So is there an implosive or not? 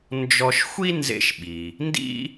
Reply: yes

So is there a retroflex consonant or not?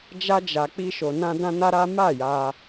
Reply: no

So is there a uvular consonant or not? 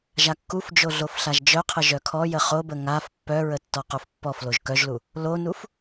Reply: yes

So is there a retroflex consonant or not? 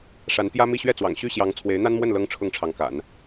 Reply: yes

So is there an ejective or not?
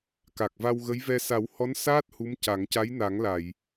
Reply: no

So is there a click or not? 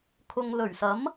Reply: no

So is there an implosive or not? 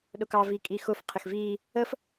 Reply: yes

